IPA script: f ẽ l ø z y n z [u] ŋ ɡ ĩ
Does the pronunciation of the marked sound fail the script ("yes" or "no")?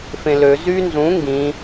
yes